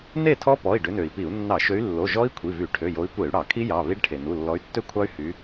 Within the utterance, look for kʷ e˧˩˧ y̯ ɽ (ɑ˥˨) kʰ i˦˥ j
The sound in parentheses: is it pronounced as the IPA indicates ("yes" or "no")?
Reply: no